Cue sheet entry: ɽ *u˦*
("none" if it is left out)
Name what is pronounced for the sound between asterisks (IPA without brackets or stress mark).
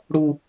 u˦